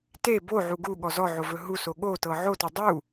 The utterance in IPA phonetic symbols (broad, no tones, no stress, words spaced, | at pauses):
te boʕu ɡu ɠɔzɔʕo vɵɦuso ɠotɤ ʕotɵ dˤu